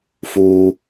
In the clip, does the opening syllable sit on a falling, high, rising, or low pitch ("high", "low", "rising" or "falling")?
high